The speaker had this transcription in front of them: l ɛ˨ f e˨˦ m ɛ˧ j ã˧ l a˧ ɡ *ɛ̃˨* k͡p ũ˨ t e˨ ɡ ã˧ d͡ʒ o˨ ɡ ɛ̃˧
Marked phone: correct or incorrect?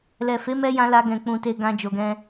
correct